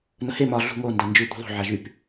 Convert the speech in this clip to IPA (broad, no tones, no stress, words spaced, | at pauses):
nəhe mɒ ɮṳ ŋo ndand͡ʒʉ d̪o̤ðˤo̤ ʕaʒyp